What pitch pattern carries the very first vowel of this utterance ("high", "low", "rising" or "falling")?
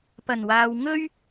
low